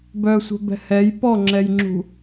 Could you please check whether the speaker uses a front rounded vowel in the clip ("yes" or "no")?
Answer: yes